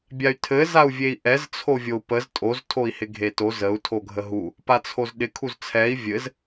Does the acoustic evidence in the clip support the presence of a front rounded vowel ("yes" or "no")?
yes